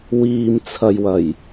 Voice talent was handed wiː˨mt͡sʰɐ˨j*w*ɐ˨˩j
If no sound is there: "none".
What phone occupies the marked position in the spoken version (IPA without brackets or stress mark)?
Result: w